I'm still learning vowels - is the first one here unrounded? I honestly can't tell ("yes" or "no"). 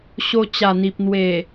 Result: no